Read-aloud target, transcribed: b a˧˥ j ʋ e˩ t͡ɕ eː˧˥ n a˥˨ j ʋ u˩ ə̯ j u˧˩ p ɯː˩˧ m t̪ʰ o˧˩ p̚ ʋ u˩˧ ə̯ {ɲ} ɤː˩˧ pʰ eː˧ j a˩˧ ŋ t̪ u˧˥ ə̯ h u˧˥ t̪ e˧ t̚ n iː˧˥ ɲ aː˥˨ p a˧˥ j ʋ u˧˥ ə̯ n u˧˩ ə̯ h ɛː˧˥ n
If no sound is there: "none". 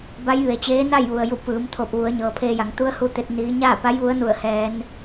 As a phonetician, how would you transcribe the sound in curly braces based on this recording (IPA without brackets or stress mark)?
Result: ɲ